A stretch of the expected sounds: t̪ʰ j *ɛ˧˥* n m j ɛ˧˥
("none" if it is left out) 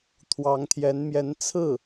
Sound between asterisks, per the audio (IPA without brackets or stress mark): ɛ˧˥